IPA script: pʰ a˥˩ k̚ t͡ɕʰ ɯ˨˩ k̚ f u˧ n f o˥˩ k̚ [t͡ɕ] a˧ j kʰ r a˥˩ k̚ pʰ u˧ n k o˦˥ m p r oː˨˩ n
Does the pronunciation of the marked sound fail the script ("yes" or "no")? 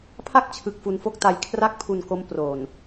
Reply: yes